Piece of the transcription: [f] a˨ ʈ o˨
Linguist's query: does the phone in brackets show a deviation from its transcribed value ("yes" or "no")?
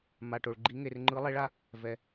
yes